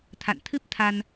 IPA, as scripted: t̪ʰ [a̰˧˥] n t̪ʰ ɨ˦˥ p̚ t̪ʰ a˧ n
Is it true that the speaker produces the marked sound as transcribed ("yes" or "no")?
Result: no